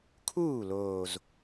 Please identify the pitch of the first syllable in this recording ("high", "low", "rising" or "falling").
falling